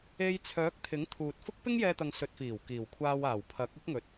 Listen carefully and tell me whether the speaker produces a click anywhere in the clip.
no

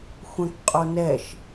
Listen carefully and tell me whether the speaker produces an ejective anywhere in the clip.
yes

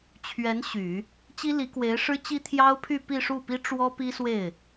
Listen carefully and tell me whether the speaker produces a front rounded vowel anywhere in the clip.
yes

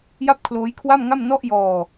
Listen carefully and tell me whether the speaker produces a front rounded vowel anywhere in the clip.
no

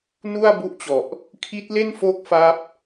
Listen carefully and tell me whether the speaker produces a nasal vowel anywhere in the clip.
no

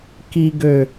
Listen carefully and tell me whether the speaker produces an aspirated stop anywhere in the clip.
no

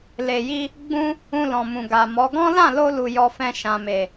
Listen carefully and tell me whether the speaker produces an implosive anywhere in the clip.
no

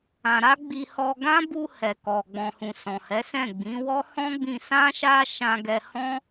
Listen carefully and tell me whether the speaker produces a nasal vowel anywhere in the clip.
yes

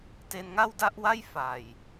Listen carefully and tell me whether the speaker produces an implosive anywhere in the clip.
no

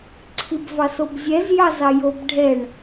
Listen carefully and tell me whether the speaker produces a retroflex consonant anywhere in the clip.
yes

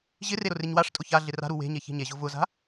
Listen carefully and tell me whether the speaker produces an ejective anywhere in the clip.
yes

